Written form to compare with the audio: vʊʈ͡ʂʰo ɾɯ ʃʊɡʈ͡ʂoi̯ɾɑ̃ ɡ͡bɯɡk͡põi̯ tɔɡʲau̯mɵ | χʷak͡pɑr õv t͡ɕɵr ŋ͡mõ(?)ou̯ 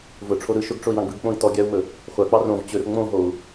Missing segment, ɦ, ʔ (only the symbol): ɦ